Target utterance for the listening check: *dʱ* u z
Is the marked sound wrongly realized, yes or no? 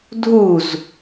no